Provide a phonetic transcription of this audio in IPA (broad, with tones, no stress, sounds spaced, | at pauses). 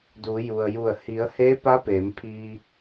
d uː˩˧ j u˩ ə̯ j u˧˩ ə̯ h i˩˧ ə̯ h eː˧˥ p a˧˥ p eː˩˧ m pʰ iː˧